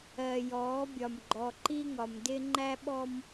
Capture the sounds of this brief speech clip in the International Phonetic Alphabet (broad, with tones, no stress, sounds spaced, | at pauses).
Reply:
ɜ˨ j ɔː˨˦ bʲ ɒ˨ m ɡ͡ǃ ɔ˨ ǃ i˦ ŋ ɒ˨ m d ɪ˦ ŋ͡ǃ æ˦ ɓ ɔ˦ m